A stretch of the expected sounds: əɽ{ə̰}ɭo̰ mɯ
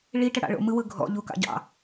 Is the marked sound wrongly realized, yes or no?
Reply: yes